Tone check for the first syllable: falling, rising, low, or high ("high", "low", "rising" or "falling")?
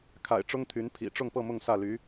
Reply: low